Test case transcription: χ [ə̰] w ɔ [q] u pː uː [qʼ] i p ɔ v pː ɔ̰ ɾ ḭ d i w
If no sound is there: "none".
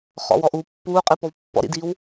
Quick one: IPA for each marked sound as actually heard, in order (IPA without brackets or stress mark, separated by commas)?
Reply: ɔ̰, ʔ, qʼ